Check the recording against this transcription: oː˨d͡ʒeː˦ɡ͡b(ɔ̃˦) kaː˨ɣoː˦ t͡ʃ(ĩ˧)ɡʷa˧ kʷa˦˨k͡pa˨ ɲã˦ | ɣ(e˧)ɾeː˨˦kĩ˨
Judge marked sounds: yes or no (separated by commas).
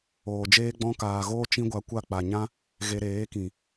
yes, no, yes